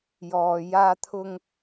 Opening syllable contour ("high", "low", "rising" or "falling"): low